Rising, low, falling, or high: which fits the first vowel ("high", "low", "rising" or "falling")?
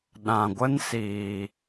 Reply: low